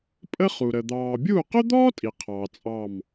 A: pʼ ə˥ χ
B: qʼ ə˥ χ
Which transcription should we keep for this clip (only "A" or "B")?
A